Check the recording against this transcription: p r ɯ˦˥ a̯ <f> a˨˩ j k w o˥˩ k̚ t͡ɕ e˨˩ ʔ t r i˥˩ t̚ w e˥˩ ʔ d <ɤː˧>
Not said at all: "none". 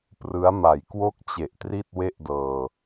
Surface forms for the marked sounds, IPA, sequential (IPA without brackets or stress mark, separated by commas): m, ɤː˧